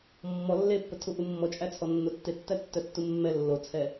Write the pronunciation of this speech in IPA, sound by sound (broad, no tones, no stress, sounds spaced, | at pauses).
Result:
mː ɔ lː e pː ə tʰ u ʔ u mː ɔ t͡ʃʼ æ t͡sʰ ɔ nː o tː e tː æ tː œ tː u mː ɛ lː o t͡sʰ ɛ